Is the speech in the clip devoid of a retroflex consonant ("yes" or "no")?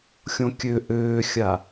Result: yes